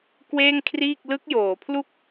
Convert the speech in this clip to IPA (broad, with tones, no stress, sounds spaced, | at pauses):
k w eː˥˩ ŋ kʰ r iː˥˩ k̚ l ɯ˦˥ k̚ j oː˩˦ pʰ l u˥˩ k̚